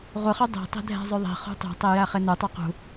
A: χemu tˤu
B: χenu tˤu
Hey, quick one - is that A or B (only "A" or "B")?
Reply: B